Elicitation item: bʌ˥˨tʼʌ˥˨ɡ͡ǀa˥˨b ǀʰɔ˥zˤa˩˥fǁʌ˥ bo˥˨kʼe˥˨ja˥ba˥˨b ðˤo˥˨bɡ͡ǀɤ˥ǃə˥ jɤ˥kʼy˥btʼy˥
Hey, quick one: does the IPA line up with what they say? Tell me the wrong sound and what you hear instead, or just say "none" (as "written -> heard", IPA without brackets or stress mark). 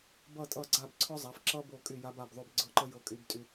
e˥˨ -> y˥˨